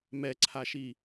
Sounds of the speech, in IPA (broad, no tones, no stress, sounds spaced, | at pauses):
m ɛ ǀʰ a ʃ i